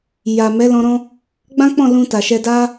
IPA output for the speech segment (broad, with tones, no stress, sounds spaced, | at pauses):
j a˨ m ɛ˨˦ l ɔ̃˧ ɾ ɔ̃˦ | ɡ͡b ã˦ k͡p ɔ̃˦˨ l ũ˧ t a˨ ʃ ɛ˧ d a˦